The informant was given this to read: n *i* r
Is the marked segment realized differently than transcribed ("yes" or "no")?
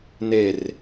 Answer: yes